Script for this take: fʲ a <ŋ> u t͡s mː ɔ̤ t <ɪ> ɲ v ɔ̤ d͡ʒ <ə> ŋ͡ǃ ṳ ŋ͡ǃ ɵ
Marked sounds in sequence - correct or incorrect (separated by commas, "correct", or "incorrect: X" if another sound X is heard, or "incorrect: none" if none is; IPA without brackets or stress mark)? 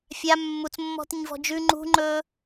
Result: incorrect: mː, correct, incorrect: ʉ